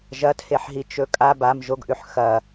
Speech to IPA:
ʒ ɐ tʰ e ħ ɦ i t͡ʃ ɵ kʼ a b a m ʒ o ɡ ʔ ʉ ħ x ɐ

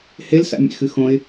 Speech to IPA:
h e l s a̰ mʲ ḛ x ɨ x õ ɪ̯

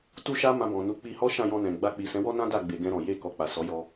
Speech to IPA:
t u˦ ʃ a˦ m ã˧ b ɔ̃˨ n u˨˦ k͡p i˧ h ɔ˦ ʃ ã˦˨ j ɔ̃˧ n ɛ̃˨ ɡ͡b a˧ k͡p i˨ s ɛ̃˨˦ w ɔ˦ n ã˦ d a˦˨ ɡ͡b e˨ ɡ ɛ̃˧ ɾ ɔ̃˨ j e˧ k ɔ˨ k͡p a˨ s ɔ˨˦ j ɔ˧

